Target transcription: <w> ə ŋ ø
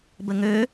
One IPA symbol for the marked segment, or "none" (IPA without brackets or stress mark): b